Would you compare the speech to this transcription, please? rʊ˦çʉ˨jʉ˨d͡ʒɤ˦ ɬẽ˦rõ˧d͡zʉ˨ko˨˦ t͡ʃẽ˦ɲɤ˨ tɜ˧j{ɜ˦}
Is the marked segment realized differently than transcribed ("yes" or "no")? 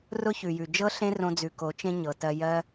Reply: no